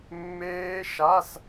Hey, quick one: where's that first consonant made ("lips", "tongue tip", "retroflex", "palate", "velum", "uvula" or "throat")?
lips